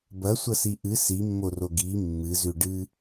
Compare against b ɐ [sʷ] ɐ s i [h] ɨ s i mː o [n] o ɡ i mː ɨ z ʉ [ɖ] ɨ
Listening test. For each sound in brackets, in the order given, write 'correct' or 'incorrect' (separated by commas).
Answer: correct, incorrect, incorrect, correct